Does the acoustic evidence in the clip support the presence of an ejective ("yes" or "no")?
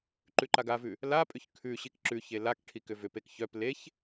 yes